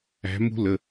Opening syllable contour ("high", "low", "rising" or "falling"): rising